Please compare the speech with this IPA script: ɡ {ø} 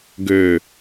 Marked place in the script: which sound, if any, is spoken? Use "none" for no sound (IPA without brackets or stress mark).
ø